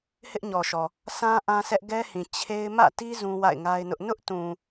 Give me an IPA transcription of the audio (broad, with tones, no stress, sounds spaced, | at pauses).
h ɪ˦ ʔ ɲ ɔ˨ ʃ ɔ˨ | sʰ ã˦ ʔ ã˦ s ɛ˦ ʔ ɡ ɛ˦ h ĩ˨ t͡ɕʰ e˦ ɪ̯ m ä̰˦˨ t i˦ z ũ˦ w a̰˦˨ ɪ̯ ŋ a˦ ɪ̯ n ʊ˦ ʔ n ʊ˦ ʔ t ũ˨